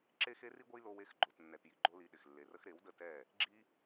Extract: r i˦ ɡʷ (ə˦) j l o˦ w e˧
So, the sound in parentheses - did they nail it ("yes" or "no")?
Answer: yes